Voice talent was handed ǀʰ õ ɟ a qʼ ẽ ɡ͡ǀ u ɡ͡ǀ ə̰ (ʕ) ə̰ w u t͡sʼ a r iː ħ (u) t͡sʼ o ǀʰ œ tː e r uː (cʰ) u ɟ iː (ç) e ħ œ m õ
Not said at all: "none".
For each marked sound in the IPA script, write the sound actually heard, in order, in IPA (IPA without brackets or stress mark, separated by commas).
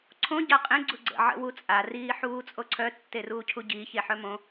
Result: ʕ, uː, cʰ, ç